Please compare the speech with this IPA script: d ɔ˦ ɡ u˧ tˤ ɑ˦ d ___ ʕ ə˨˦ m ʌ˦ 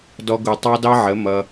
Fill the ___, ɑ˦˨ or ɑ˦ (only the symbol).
ɑ˦